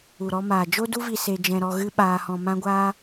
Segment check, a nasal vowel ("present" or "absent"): present